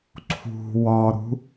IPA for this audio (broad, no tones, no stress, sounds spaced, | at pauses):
ǀʰ ṳ w ɒ ɾ ṳ